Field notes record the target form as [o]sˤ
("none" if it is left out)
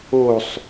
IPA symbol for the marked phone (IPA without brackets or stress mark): o